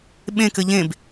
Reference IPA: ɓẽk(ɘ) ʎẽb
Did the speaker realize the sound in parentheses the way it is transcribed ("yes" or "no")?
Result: yes